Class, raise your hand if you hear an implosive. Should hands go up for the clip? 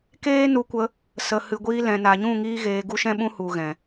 yes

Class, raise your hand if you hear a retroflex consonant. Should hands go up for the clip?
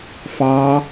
no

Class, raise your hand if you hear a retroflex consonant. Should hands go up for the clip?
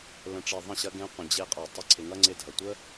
yes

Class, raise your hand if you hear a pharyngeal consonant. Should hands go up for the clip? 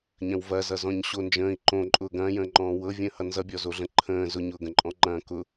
no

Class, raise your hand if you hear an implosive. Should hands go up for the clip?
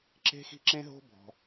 no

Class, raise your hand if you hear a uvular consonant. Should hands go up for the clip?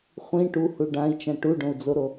yes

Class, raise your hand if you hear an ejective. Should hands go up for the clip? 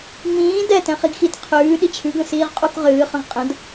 yes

